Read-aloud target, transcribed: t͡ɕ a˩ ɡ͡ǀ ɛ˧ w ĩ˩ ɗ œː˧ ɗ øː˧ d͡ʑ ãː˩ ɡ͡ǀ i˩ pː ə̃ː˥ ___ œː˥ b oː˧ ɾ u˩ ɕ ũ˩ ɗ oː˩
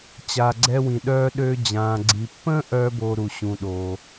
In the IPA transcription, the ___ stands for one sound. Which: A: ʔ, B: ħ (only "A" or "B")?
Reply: A